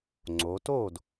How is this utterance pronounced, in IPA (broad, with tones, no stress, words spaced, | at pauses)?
ŋ͡ǀo˩˧to˥˩d